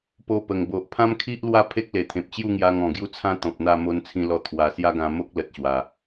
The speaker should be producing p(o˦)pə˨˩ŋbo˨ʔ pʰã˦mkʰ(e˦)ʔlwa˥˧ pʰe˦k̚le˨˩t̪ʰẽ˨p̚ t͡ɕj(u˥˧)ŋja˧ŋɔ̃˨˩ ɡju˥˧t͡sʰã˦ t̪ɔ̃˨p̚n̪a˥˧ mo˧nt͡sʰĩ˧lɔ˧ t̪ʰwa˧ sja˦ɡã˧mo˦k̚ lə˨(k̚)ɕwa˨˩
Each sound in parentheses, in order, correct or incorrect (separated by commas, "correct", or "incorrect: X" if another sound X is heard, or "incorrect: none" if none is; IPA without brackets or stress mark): incorrect: o˧, incorrect: i˦, correct, incorrect: t̚